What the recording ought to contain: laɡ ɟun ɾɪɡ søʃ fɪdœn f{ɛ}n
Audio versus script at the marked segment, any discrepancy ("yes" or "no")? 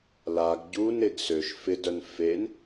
yes